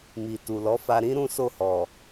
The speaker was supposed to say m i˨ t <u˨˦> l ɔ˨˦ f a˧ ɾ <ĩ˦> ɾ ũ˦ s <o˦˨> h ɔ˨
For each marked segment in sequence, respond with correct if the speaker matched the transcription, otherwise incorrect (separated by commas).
incorrect, correct, correct